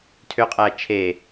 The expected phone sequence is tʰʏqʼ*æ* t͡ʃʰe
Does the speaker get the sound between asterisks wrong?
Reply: no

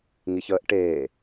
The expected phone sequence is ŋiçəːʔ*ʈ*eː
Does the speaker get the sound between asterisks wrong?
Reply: no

